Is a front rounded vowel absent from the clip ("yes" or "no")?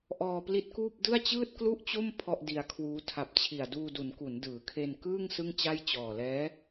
yes